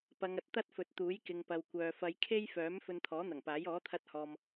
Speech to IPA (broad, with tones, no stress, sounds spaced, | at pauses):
p ɐ˨˧ ŋ ɐ˨ t̚ t̪ ɐ˥ t̚ f ɵ˨˥ t̚ t̪ uː˨˥ j k ɪ˨ ŋ p ɐ˨ w kʷ œː˨ f ɐ˨˧ j kʰ e˥ j f œː˨˥ m f ɵ˧ n t̪ʰ ɔː˨˥ n̪ ɐ˨˩ ŋ p aː˨˥ j ɔː˨˥ t̪ʰ ɐ˧ t̚ h ɔː˨ m